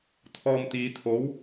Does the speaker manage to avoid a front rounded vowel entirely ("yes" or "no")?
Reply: yes